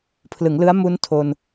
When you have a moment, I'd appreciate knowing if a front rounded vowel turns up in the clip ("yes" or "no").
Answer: no